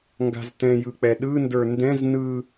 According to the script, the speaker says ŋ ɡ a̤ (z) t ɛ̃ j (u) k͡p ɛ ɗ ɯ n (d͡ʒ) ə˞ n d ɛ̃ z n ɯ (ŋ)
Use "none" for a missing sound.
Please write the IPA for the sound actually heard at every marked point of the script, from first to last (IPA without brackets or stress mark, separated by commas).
z, ɯ, d, none